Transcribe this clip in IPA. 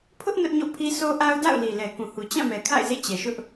pʰ ʊ˦ ʔ n ʊ˦ ʔ ɲ o̰˦˨ pʰ i˦ sʰ o˦ ʔ a˦ ʊ̯ d a̰˦˨ ʊ̯ l i˨ l ɛ˨ k ũ˨ h u˨ t͡ɕ ã˦˨ m ɛ˨ kʰ a̰˦˨ ɪ̯ z ḛ˦˨ t͡ɕ ɛ˨ ʃ ʊ˦ ʔ

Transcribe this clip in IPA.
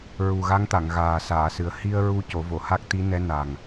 ɹ u˨˩ ɣ a˧˥ ŋ t̪ a˨˩˨ ŋ ɣ aː˨˩ s aː˨˩˨ s ɨ˨˩ ə̯ h i˧ ə̯ ɹ u˧ c o˨˩˦ v o˨˩˨ h a˦˥ k̚ t̪ i˧˥ n ɛ˧˥ n a˨˩ ŋ

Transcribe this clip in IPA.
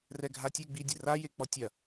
r ɛ ɡʱ a tʲ e ɡ͡b i dʲ ɘ r a j e k͡p ɔ tʲ ɐ

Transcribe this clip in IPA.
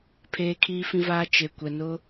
pʰ eː˦ kʰ iː˦ f ĩ˦ v aː˦ t͡ʃ e˨ kʷ ɛ˨ n ʊ˦

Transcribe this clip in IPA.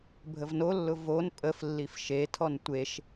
bʱ ə v n o lː ʊ v o n pʼ ə f lː i f ʃ e tʰ ɔ n tʷ e ʃ

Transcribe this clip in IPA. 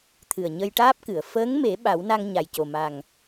t̪ʰ ɨ˨˩ ə̯ ɲ ə˧ j ʈ aː˦˥ p̚ k ɨ˨˩˨ ə̯ f əː˧˥ ŋ m e˨˩˦ ɓ a˨˩˦ w n a˧ ŋ ɲ a˨˩ j c o˨˩ m a˨˩ ŋ

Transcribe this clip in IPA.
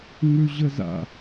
ŋ ʉ ʑ ə z a̰

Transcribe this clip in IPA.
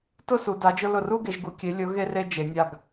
t ʊ˥˧ s u˩˧ d a˩˧ d͡ʒ ʊ˧ l ʊ˧˩ r u˥˧ ɡ e˩˧ ʒ ɡ u˩˧ kʲ e˩˧ lʲ ʊ˩˧ ɣ e˥ r e˥ d͡ʒ e˩˧ nʲ a˧˩ ɡ

